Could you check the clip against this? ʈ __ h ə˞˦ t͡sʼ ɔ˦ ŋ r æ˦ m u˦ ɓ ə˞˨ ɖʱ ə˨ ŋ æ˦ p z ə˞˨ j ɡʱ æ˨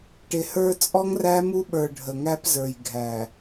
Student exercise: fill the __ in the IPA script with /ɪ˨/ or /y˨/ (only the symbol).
ɪ˨